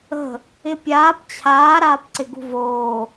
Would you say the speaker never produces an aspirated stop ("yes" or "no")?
no